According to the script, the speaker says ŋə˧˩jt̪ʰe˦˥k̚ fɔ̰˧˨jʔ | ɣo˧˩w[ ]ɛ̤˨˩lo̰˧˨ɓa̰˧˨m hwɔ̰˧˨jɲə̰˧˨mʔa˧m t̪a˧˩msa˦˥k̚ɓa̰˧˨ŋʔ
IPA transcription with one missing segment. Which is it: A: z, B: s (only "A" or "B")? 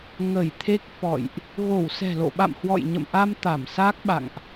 B